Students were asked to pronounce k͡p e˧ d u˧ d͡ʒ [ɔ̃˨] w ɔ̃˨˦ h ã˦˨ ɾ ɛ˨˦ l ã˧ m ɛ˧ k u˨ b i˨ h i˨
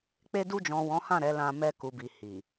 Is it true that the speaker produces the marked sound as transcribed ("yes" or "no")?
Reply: yes